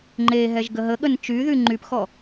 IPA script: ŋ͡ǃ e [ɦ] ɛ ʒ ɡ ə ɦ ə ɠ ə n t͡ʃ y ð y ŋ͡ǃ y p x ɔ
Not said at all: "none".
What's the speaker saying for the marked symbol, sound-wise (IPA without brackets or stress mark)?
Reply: ɦ